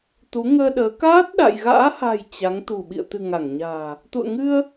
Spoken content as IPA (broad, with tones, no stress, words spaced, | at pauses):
t̪u˨˦ŋəː˧ɗəː˨˦ kaː˦˥t̚ɗa̰˧˨jɣa̰ː˧˥ha̤˨˩j t͡ɕa˨˦ŋt̪ṳ˨˩ ɓḭ˧˨ə̯t̪ɨ̤˨˩ ŋa˧˩ŋɲa̤ː˨˩ | t̪ṵ˧˨ə̯ŋɨ˧ə̯